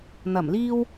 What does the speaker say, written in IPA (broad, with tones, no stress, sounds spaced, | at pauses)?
n̪ ɐ˨˩ m l iː˧ w